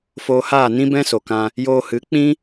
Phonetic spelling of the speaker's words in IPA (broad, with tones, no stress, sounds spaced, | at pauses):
f oː˧ h aː˦˨ n ĩ˦ b ɛ̃˦ s o˨ k ã˧ | j oː˧ h ɨ˨˦ k͡p ĩ˦